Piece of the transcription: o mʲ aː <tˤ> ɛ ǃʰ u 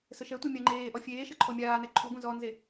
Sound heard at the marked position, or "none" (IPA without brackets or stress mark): n